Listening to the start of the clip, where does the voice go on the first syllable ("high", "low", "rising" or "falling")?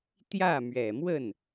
falling